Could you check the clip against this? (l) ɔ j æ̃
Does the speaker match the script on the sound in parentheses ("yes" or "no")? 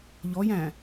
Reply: no